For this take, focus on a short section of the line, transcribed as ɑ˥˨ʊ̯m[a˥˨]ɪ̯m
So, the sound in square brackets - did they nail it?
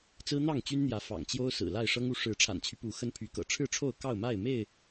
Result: yes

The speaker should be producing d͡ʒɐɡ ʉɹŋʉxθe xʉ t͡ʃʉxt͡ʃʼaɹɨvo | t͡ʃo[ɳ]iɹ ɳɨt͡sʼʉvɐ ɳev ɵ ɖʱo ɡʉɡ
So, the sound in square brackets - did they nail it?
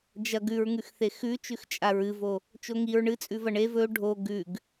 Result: no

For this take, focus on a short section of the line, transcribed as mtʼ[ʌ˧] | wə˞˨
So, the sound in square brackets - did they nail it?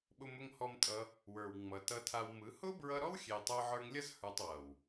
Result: yes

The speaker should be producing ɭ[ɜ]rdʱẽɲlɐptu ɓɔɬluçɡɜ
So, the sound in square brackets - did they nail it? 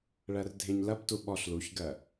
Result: yes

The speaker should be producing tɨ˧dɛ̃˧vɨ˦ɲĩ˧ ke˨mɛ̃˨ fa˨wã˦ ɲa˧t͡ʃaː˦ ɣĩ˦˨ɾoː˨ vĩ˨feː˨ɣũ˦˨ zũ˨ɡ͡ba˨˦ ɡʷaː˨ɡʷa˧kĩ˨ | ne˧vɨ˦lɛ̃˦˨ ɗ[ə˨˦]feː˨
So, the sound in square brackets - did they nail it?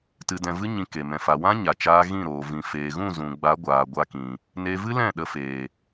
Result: no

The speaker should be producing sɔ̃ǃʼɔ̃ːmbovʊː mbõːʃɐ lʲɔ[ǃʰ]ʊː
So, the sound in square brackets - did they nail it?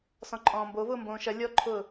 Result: yes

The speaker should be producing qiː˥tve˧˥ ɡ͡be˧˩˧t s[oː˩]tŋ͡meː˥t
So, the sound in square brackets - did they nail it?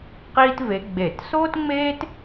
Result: no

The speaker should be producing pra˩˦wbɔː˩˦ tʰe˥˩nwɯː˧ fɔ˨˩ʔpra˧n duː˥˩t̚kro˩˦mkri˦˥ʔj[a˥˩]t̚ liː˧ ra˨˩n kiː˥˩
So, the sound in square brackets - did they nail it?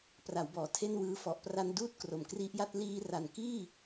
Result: yes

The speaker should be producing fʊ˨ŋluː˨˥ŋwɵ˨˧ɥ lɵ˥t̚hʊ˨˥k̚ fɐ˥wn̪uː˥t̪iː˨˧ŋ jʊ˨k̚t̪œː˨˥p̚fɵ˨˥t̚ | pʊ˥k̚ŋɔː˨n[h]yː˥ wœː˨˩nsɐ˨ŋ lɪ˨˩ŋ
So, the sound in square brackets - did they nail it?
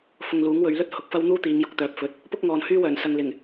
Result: yes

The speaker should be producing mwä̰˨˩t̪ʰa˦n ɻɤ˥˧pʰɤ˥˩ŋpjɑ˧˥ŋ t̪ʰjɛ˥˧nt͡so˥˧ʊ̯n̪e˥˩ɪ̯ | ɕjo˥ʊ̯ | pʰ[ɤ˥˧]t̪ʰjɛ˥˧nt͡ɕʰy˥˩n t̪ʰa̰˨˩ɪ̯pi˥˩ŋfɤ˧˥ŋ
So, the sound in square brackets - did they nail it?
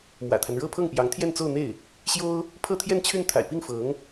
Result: yes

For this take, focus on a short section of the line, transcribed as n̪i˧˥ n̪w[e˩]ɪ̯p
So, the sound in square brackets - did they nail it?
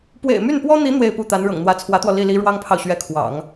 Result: no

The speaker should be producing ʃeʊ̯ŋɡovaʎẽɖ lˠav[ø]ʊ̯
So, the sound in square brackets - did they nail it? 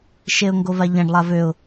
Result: yes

